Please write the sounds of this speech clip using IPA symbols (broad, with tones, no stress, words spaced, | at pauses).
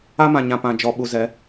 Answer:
a˦mã˨ɲã˨ pã˨ d͡ʒɔ˨ɓu˨zɛ˨˦